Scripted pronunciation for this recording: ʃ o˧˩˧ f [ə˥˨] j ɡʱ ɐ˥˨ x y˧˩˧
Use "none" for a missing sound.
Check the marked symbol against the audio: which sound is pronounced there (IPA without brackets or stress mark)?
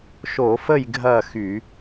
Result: ə˥˨